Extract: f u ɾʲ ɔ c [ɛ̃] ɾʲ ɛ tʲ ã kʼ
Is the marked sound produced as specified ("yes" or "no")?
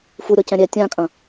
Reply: yes